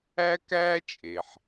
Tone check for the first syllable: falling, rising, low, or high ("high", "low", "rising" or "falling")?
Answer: high